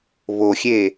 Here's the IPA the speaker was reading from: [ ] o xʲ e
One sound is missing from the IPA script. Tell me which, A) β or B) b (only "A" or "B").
A